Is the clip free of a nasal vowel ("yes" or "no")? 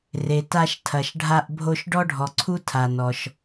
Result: yes